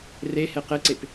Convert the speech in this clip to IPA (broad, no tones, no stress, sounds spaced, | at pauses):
r e h e q e ǀ e p